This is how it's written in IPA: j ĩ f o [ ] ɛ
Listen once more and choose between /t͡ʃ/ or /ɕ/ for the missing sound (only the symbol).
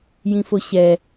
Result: ɕ